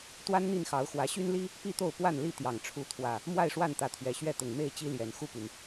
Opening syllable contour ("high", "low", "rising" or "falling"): high